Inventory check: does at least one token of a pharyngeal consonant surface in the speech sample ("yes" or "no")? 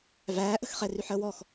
yes